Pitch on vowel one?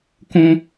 high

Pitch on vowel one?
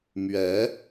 rising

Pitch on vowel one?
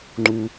low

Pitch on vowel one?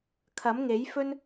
rising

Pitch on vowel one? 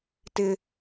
high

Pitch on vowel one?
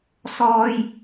high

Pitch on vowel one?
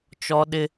high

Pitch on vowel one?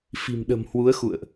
low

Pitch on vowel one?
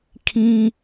high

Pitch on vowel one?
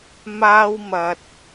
high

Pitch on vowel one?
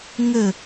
falling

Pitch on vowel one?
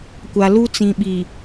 low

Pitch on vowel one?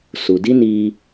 low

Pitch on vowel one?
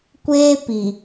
high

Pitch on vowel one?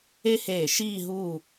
high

